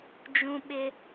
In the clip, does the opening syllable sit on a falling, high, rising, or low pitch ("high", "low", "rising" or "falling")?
high